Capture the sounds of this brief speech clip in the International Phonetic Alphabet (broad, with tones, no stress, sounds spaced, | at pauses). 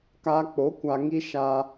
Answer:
k aː˧ k͡p o˨˦ kʷ a˧ ŋ i˦ ʃ aː˧